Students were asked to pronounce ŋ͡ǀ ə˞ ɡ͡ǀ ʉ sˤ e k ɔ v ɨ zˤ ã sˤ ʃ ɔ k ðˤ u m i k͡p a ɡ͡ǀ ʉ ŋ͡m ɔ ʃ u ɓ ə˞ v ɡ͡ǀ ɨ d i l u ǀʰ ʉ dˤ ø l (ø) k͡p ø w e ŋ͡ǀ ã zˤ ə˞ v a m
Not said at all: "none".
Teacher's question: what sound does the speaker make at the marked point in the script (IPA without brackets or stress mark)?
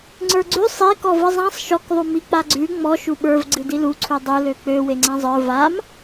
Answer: ø